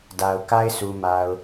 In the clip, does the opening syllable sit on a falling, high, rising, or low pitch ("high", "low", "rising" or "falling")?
low